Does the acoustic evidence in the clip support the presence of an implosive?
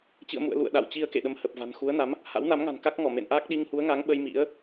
yes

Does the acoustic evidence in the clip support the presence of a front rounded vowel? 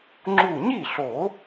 no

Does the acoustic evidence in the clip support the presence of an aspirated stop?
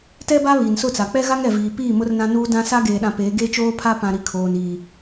yes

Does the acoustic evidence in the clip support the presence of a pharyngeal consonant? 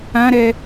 no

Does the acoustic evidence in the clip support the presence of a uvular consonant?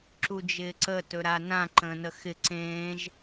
no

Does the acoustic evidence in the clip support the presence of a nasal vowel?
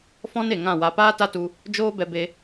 yes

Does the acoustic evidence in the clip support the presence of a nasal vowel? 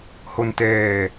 no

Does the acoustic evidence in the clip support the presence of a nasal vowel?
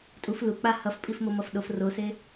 no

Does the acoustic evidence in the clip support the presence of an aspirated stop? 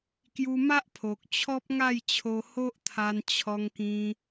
yes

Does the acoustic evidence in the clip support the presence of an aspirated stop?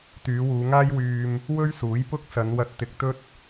no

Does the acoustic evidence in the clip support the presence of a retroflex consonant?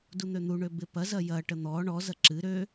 yes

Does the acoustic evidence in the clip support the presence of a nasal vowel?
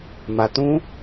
yes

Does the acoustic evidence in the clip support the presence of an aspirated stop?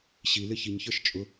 no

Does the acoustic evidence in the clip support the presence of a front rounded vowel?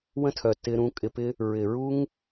yes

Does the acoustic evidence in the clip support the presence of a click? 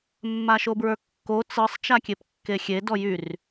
no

